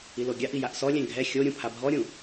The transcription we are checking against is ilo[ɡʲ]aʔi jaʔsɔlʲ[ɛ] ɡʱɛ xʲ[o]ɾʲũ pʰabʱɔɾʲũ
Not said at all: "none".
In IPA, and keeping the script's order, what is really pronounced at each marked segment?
ɡʲ, ɛ̃, o

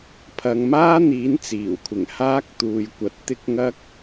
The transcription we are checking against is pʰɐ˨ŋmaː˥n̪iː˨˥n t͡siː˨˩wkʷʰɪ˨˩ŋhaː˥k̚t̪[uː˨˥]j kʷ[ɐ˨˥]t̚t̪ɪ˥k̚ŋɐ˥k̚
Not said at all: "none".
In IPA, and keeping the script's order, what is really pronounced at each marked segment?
uː˨, ɐ˨

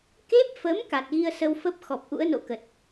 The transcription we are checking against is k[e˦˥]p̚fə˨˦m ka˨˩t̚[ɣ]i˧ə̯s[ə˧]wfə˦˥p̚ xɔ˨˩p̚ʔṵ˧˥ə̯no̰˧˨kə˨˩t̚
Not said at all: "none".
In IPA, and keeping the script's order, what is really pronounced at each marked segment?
e˦˥, ɣ, ə˧

